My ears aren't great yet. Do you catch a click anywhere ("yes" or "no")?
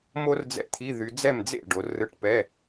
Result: no